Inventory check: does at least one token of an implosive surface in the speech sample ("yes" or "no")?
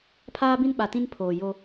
yes